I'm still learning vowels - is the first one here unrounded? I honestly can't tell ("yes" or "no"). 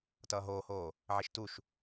yes